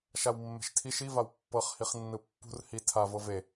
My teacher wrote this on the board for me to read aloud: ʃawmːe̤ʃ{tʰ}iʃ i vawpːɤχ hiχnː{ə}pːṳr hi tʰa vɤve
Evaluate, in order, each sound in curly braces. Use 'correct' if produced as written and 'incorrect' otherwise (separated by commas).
correct, incorrect